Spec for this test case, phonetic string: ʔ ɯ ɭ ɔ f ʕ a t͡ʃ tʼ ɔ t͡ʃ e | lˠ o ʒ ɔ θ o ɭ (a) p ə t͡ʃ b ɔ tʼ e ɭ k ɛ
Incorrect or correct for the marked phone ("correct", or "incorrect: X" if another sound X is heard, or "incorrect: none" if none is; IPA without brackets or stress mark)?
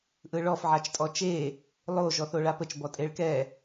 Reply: correct